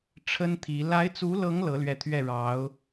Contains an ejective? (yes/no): no